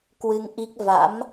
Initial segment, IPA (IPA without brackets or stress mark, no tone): k